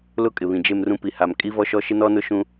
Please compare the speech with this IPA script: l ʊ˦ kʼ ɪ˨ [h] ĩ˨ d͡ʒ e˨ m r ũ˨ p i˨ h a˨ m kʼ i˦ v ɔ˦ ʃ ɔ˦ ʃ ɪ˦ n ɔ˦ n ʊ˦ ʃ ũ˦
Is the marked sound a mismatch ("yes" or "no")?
yes